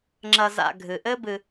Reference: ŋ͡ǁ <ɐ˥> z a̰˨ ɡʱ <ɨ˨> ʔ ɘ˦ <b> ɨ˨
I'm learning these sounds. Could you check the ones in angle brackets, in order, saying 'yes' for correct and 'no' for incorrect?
no, no, yes

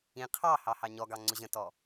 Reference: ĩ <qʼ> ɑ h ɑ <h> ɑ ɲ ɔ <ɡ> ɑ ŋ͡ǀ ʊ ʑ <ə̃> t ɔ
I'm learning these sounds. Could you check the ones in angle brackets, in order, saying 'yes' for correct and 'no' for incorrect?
no, yes, yes, yes

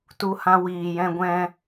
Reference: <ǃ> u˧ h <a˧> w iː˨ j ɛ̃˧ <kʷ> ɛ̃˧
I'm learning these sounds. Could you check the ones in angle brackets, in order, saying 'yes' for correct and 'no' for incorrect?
no, no, no

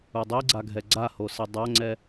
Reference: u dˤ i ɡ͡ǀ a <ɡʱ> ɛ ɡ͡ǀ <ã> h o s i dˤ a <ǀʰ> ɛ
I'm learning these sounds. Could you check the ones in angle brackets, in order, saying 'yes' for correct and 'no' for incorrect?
yes, no, no

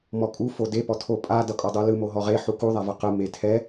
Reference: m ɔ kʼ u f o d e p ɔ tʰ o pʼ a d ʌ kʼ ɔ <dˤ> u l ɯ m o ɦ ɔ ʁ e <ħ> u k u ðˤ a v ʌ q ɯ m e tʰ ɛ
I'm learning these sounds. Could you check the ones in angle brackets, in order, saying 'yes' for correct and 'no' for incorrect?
yes, yes

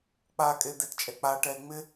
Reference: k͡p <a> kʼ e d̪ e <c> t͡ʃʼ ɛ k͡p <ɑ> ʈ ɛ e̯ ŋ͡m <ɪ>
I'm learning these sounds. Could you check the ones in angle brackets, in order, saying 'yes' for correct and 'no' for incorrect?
yes, no, no, yes

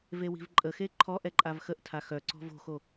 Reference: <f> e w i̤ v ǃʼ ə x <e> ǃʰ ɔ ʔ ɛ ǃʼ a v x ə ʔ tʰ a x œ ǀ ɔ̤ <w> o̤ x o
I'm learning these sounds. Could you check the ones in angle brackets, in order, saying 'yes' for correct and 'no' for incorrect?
no, yes, no

